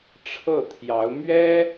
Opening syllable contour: falling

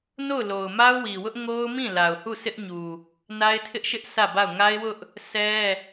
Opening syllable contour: falling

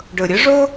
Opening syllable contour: low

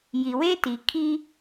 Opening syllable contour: low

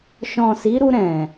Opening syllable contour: low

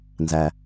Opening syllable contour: low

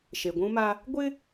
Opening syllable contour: low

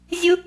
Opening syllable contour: high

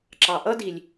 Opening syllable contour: low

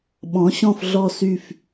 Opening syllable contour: rising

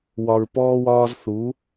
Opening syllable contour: low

